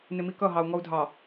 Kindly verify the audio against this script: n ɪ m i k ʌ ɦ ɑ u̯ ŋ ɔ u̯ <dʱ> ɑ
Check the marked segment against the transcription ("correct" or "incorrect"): correct